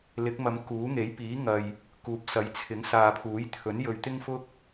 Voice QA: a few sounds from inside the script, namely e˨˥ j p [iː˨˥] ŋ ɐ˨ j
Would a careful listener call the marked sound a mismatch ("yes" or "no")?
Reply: no